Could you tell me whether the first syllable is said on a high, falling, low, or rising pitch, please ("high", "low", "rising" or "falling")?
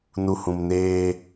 low